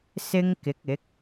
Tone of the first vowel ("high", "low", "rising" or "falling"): high